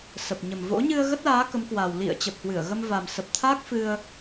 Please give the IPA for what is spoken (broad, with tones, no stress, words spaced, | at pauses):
sə˨˩p̚ɲə˨˩mvo̰˧˥ ɲɨ˧ə̯ɣə˦˥t̚laː˨˦ kə˨˦mkwa˨˩w lḭ˧˨ə̯ t͡ɕə˨˩p̚hwɨ˧˩ə̯ɣə˧m va˨˩msə˨˩p̚t̪ʰa˦˥k̚ fɨ˧ə̯